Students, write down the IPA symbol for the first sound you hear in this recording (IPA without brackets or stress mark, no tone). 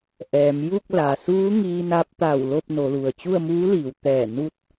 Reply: ʔ